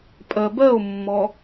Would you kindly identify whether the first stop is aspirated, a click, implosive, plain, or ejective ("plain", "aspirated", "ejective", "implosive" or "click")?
ejective